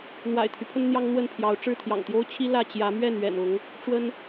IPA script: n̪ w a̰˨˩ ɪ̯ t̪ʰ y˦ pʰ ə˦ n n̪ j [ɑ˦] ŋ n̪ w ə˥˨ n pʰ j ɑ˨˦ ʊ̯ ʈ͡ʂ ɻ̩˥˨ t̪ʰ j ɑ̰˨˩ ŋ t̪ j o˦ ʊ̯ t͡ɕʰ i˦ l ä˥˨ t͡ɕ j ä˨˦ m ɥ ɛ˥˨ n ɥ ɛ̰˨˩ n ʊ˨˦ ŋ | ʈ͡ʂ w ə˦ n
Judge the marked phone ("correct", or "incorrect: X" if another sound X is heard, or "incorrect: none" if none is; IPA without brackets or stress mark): correct